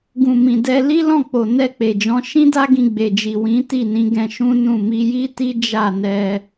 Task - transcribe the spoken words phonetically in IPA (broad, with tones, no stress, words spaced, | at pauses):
ɡũ˨mĩ˨dɛ˧ li˦lɔ̃˦˨k͡po˨ nɛ˧k͡pe˨d͡ʒɔ̃˨˦ ʃĩ˦da˦ɡĩ˧ ɡ͡be˨d͡ʒi˨wĩ˨˦ ti˦˨nĩ˨˦ ɡɛ̃˧ ʃũ˦nũ˦˨ mi˧ji˦ ti˦ d͡ʒa˦˨nɛ˧